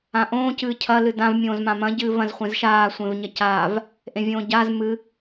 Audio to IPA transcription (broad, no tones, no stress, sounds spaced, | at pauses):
ã ʔ õː c ɨː cʰ ɐ l ɨ d ã v mʲ õː z m ã m ɐ̃ ɟ ɨː v ɐ̃ z χʷ ẽ z ʃ aː sʷ ẽ v ɲ ɐ c aː v | ʔ ẽ vʲ õː ɟ a z m ɨ